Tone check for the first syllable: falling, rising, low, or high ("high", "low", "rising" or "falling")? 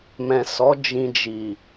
low